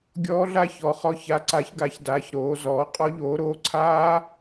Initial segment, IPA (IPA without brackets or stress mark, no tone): ɡʲ